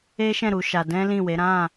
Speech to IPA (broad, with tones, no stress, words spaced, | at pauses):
e˦ʃɛ̃˦˨ ɾu˨˦ʃa˧ dɛ̃˦lĩ˦˨we˨˦ ɾã˦˨